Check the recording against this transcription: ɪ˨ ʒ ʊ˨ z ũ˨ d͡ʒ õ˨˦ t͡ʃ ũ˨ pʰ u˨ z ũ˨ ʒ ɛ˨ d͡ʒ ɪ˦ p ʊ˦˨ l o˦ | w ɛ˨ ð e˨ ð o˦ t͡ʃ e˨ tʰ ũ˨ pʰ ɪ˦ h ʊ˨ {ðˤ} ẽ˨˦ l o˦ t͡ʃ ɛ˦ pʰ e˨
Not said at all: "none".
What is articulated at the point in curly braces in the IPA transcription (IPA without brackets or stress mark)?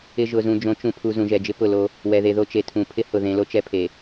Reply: ð